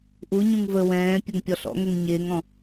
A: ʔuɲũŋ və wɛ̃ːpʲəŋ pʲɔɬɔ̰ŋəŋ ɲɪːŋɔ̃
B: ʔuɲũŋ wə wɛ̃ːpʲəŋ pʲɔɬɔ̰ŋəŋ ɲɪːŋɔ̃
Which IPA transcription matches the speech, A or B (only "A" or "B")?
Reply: A